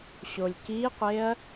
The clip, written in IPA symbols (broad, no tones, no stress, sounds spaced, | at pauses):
ɕ o lʲ k i qʷ e ɐ̯